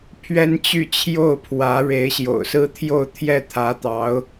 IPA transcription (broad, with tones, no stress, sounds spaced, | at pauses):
pʰ ɥ ɛ˥ n t͡ɕ y˥˧ t͡ɕʰ j o˥˩ ʊ̯ pʰ w ä˧˥ ɻ e˧˥ ɪ̯ ɕ j o̰˨˩ ʊ̯ s ɹ̩˥ t̪ʰ j o˥˧ ʊ̯ t̪ʰ j ɛ˥˩ t̪ʰ ä˧˥ t̪ ɑ˧˥ ʊ̯